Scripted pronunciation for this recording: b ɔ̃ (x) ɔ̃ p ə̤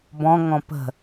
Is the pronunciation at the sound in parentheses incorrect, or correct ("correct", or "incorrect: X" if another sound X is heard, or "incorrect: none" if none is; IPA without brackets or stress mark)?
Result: incorrect: ŋ